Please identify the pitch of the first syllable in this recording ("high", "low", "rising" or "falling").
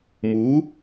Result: rising